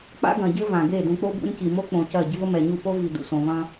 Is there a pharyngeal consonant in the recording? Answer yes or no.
no